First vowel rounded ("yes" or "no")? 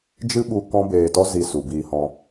no